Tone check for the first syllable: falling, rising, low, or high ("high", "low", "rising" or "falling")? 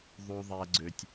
high